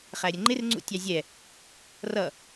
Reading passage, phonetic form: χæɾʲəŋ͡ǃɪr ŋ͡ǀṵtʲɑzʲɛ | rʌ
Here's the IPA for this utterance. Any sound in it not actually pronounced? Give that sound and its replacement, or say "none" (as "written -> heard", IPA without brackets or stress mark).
none